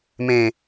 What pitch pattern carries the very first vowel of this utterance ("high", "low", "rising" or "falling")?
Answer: low